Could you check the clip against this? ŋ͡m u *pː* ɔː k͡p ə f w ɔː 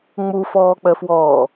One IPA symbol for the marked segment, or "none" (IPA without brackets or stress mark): f